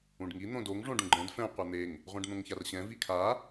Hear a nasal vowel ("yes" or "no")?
yes